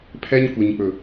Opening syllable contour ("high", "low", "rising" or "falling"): high